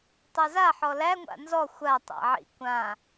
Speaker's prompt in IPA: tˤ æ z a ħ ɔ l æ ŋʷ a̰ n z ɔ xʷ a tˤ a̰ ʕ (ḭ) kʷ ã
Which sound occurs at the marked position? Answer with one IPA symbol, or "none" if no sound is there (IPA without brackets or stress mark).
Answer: ḭ